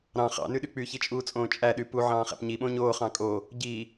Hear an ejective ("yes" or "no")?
yes